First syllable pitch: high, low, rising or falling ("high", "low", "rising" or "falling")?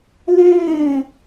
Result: falling